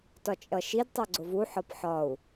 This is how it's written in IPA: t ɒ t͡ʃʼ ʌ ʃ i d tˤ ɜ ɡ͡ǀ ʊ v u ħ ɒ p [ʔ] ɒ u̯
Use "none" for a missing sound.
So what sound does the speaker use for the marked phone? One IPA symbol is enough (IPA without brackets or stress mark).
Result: ħ